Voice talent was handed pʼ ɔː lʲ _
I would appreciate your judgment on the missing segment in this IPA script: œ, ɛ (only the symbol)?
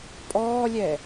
ɛ